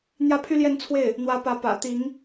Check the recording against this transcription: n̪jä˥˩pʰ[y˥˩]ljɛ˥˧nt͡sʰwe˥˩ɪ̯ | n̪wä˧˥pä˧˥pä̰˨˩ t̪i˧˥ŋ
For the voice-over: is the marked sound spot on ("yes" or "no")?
no